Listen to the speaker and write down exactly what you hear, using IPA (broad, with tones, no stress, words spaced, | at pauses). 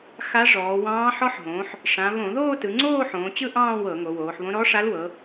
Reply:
xa˧˥ʐɔː˩˧wɑ̃ː˧˥ ħɔ˧˥ħɦõː˩˧ħ | ʂã˩˧ βõ˧˩˧ðoː˥˧tɯ˩˧ŋ͡ǀoː˥˧ ħõː˩˧t͡ɕɯ˥˧ʔɑ̃ː˥˧ wɤ˧˩˧ŋo˩˧woː˩˧ħβõ˧˥ ɾɔ˧˥ ʂa˧˥lwɤ˩˧